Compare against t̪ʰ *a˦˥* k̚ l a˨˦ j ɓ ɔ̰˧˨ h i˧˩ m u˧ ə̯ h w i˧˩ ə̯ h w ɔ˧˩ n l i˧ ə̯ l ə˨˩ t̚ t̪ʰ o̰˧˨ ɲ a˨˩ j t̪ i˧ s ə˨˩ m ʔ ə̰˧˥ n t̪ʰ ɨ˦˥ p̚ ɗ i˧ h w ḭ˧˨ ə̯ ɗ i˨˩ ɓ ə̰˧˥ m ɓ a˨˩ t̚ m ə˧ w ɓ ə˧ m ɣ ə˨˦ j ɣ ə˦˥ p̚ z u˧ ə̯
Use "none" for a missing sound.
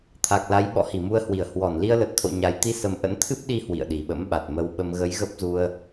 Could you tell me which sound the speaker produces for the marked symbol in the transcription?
a˨˩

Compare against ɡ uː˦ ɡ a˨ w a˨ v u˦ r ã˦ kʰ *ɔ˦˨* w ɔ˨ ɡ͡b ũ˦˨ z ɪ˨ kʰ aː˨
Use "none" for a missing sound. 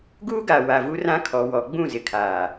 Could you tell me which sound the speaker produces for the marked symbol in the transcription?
ɔ˨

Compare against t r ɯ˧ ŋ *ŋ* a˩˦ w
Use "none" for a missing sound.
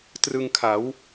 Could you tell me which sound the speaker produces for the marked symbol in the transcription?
kʰ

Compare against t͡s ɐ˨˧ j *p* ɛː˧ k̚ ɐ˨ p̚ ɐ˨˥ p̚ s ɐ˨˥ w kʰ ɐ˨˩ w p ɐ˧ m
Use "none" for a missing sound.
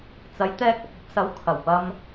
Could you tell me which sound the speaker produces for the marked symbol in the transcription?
t̪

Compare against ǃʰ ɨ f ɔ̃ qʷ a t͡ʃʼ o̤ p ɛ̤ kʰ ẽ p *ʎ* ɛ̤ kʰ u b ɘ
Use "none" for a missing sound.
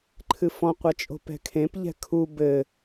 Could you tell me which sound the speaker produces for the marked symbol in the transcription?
ʎ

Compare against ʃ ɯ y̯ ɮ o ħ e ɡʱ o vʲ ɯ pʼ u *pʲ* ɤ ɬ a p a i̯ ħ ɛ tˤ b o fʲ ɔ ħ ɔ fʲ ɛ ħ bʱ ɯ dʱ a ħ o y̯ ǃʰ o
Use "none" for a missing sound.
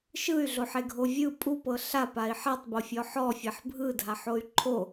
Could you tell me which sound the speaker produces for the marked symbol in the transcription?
p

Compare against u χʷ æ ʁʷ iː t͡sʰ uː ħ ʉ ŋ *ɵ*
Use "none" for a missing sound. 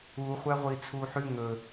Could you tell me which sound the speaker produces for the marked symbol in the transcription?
ɵ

